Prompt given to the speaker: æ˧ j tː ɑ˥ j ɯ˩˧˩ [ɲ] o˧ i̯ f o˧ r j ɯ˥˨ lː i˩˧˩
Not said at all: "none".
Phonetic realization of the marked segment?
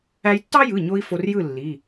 ɲ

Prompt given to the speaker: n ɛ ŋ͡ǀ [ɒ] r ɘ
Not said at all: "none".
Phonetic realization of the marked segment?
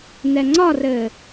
ɒ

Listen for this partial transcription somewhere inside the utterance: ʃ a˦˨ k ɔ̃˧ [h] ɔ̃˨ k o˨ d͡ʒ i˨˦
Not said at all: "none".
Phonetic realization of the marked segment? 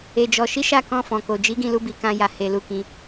f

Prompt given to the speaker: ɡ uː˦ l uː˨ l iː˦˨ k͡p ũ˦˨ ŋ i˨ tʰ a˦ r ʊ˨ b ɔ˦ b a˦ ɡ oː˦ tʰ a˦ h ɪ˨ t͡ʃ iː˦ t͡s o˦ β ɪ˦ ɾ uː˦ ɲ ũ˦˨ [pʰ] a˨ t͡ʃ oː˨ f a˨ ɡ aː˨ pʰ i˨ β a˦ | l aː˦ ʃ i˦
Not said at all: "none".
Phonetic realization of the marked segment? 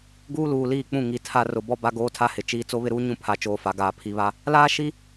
pʰ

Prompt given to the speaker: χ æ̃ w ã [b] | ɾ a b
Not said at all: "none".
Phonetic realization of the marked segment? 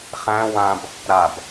b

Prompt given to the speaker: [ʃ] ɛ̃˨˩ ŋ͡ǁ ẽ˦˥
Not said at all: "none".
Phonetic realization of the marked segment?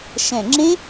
ʃ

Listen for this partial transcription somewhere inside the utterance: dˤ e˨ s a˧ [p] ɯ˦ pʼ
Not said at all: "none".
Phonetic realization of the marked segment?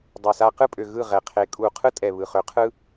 q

